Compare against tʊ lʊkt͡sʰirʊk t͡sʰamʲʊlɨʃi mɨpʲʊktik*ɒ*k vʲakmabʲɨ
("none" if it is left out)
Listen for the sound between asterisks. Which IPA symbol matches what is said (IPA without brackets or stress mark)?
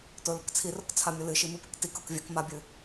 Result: ɒ